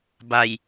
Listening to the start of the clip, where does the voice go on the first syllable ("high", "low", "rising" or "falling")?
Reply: low